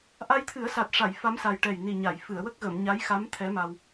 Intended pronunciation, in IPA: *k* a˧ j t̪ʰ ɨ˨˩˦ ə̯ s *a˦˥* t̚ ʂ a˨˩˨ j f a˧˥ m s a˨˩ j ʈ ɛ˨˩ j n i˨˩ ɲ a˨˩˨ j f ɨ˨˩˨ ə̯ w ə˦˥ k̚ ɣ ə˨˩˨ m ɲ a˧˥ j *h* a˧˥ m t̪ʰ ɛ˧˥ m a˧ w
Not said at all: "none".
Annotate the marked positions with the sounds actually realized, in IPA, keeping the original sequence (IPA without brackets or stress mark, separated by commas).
ʔ, a˨˩, x